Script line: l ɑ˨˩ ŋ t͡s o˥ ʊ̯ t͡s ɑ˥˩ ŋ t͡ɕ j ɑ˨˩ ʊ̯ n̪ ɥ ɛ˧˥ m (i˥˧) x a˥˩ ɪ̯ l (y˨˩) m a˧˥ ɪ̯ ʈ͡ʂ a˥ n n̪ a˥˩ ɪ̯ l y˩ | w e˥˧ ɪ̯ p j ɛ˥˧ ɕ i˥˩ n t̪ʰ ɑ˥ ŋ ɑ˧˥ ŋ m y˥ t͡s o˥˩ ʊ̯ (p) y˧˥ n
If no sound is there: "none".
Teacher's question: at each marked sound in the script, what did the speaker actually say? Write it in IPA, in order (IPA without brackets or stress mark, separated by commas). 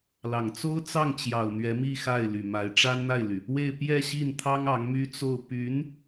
i˥˧, y˨˩, p